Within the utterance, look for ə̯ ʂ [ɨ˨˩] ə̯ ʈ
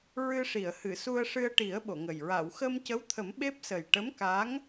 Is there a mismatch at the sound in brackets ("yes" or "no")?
yes